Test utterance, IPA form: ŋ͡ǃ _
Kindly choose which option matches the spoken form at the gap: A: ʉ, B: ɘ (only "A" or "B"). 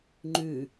A